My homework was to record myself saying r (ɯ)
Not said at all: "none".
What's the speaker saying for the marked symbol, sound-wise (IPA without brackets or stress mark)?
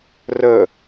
ə